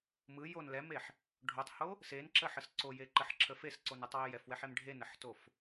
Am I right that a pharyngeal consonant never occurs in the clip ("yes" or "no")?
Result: no